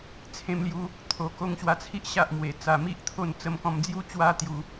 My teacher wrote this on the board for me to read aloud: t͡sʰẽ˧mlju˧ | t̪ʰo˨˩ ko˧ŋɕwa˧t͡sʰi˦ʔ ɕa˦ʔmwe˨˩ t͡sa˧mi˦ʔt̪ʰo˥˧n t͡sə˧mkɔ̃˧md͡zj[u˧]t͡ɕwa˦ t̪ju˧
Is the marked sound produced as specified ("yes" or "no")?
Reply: no